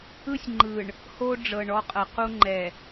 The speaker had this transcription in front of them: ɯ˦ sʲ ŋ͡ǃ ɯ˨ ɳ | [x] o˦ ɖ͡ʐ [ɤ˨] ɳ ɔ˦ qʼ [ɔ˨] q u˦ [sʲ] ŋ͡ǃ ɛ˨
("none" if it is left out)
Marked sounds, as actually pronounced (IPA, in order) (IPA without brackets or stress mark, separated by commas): h, ɤ˨, ɤ˨, none